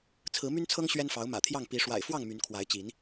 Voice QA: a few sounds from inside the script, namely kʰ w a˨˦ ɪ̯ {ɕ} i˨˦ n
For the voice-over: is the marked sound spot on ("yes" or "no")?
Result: no